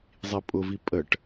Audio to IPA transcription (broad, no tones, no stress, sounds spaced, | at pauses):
zˤ i pʼ ʊ v i pʼ ə ʈ